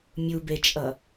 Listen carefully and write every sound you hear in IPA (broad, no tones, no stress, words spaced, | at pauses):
mʲubet͡ʃʼʌ